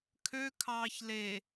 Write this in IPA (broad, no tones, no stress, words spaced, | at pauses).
kʰøkʰɑːç le